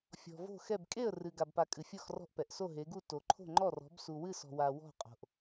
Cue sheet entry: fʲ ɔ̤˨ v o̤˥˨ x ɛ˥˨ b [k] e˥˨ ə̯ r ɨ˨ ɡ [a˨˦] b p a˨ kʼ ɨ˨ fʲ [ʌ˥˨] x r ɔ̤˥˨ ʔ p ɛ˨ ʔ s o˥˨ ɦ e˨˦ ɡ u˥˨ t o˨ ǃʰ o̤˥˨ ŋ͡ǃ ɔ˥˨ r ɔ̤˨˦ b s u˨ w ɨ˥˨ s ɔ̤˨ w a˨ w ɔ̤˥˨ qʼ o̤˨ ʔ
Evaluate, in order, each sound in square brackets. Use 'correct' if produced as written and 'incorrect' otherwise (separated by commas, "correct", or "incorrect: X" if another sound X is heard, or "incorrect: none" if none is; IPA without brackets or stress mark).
incorrect: kʼ, incorrect: a˨, incorrect: ɔ˥˨